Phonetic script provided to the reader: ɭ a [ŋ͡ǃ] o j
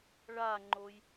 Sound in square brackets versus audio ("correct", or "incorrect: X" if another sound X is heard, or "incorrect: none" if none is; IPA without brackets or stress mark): correct